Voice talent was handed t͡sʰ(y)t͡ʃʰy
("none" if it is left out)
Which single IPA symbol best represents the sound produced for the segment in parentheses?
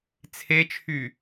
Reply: e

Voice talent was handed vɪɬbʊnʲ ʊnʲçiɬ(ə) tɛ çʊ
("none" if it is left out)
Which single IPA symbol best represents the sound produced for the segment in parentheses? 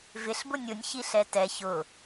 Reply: ɛ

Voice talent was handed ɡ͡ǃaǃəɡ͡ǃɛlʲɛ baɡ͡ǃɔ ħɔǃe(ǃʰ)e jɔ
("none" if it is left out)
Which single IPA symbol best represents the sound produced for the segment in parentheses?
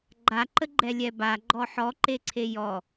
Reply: ǀʰ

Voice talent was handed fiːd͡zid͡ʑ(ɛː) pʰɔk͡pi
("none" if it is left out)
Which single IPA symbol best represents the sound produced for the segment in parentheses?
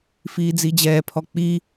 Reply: ɛː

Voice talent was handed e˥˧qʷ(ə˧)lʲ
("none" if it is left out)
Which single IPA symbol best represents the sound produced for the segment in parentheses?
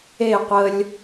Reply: ə˧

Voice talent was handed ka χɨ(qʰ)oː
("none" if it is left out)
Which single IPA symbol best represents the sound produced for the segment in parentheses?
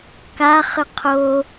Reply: qʰ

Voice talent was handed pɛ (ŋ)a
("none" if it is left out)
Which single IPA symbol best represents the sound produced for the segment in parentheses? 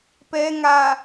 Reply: ŋ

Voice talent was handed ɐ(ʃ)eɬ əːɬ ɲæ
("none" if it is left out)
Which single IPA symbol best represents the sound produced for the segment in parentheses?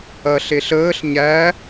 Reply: ɬ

